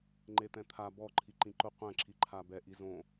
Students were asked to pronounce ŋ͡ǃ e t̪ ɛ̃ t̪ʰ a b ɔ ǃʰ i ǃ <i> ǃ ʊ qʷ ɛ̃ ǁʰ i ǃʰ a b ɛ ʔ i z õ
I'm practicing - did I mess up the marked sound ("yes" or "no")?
yes